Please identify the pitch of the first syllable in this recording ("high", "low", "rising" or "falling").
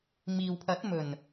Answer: low